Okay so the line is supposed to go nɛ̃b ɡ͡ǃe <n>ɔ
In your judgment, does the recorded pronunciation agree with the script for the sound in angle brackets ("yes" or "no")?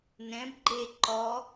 no